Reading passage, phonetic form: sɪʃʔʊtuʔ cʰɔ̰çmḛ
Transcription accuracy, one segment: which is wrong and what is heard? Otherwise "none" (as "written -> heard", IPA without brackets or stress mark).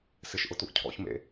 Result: none